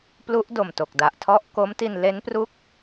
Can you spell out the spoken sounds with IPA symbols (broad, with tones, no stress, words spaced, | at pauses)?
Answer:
plu˦˥ʔdo˨˩mto˨˩k̚da˨˩ʔ tʰɔ˥˩ʔ ko˦˥mti˧n le˦˥npru˦˥k̚